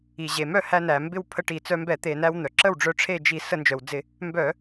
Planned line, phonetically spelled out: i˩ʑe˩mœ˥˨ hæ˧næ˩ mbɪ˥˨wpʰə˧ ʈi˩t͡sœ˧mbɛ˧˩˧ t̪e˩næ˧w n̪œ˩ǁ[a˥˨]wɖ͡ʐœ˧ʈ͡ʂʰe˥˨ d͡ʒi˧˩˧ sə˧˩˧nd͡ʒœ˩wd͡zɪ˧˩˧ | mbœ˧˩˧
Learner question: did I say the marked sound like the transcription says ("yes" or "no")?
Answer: no